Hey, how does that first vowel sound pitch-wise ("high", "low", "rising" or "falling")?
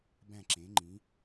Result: falling